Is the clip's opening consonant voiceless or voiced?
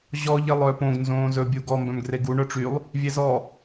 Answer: voiced